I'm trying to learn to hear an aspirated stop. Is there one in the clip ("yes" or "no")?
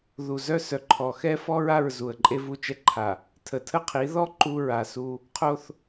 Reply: yes